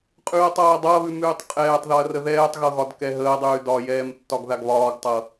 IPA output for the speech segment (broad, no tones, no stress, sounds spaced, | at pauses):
qʼ ʉː ɐ̯ tˤ ɤː dˤ ɤ ɐ̯ β ʉ m ʉː tˤ qʼ ɛː tˤ ð ɒ ɐ̯ r ə ð ɛː tˤ ɣ ɤ ɣ ɒ d k ɛ ɦ əː dˤ ʉː d ɒ j ɛː m tː ɒ ɡ ð a ɡ β ɒː ɡ tˤ ɤ